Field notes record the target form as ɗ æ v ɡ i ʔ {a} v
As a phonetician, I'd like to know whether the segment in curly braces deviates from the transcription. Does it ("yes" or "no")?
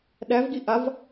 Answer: no